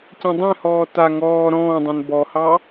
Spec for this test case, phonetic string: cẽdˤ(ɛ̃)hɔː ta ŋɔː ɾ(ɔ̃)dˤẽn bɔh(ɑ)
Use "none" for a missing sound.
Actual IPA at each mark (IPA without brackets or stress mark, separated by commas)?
ɛ̃, ɔ̃ː, ɑ